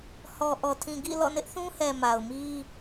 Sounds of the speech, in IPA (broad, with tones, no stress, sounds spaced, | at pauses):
h ɔ˨ ʔ ɔ˨ tʰ ĩ˨ ɡ ḭ˦˨ l ɔ̰˦˨ n ɪ˦ ʔ θ ũ˦ h ɛ˨ m a˨ ʊ̯ m i˦